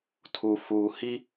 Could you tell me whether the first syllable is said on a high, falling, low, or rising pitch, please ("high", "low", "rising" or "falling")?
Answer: low